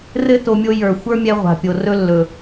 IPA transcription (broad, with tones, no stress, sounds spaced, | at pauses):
r ɘ˦ t o˧ mʲ o˧ j ə˞˨ xʷ ə˞˦ mʲ ɛ˧ ʁʷ a̤˨ pʲ o˨ r ɵ˦ lː ɵ˨